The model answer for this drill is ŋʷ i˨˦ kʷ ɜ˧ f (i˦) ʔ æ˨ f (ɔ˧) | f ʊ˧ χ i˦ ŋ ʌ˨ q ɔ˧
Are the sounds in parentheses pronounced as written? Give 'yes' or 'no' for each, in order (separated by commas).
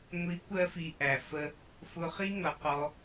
no, no